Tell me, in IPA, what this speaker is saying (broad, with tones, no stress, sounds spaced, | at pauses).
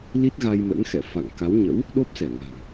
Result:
l i˦˥ t̚ ɣ a˧ j m ə̰˧˥ n x ɛ̰˧˨ f a̰˧˨ ŋ k a˨˦ w ɲ ə̰˧˥ w | ɗ o˦˥ p̚ s ɛ˧˩ ŋ a̤˨˩ ŋ